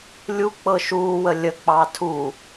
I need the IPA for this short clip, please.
lʲuk͡pɤ ʃuːwə lʲək͡pɑː tʰu

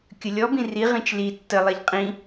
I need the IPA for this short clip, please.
kʲəlʲɔbĩ riʁĩt͡ʃ li tːəlˠɛʎ qʼĩ

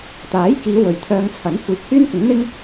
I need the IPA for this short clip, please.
t̪aː˨˥jkiː˨˧ wɵ˨ɥt̪ʰœː˧ŋt͡sʰɐ˨˥n kʷiː˨˥k̚hyː˥nkɪ˨˥ŋn̪ɪ˥ŋ

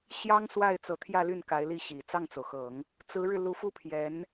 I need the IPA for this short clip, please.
ɕjɑ˥ŋswa˥˩ɪ̯ t͡sɤ˧˥t̪ʰjä˥˧ly˥˩n ka˧˥ɪ̯li˥˩ɕi˨˩ t͡sɑ˥˩ŋt͡so˩ʊ̯xɤ˨˩˦ŋ | t͡sɹ̩˧˥ɻɻ̩˧ lu˧˥fu˥˩pʰjɛ˧˥n

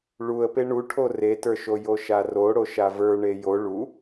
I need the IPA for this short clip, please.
ɭuə̯pe ɳuʈʰo retə˞ʃo joʃaro ɽoʃavə˞ɳe jo ɭu

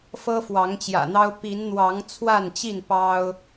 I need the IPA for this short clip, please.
fɤ˦fwɑ˨˦ŋt͡ɕjä̰˨˩n̪ɑ˦ʊ̯ pi˨˦nn̪wɑ˨˦ŋ t͡sʰwa˥˨nt͡ɕi˥˨n pɑ˦ʊ̯

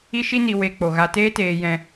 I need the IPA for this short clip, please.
i˦ʃi˦ni˧ we˧ k͡po˧ ɣa˧teː˦teː˧jɛ̃˧

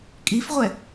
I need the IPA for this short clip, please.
kʼifʁʷɛ

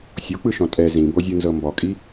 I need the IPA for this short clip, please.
sʲok͡pɯʃɔ̃ tʼɛ zĩbozʲɯnzɤ mbɔkʼi

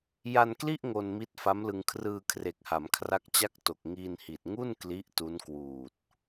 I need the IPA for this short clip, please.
ja˧nkli˥˩ʔ ŋo˧n mi˦˥t̚fa˦˥mlɯ˧ŋ kʰrɯː˧kʰre˨˩k̚ha˩˦m kʰra˦˥k̚t͡ɕa˥˩k̚to˨˩k̚ ŋiː˧nhi˨˩t̚ŋu˥˩n kli˦˥ʔtu˦˥n kwuː˨˩t̚

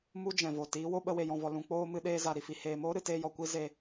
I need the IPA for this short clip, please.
mu˦d͡ʒɛ̃˨vo˨ tiː˨˦wo˦ɓə˧ we˨jɔ̃˨vɔ˨ lũ˨k͡poː˧ mɨ˧ɗeː˧za˨ ɾi˧fi˨ heː˨moː˦ɾɨ˨ teː˧jɔ˨ kʷi˦ ze˧

